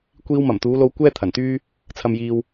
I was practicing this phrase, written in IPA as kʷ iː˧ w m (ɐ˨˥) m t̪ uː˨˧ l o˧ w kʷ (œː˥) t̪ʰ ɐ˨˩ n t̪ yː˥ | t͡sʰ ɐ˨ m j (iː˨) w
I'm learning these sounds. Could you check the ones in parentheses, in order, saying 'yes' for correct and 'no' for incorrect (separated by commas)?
no, no, yes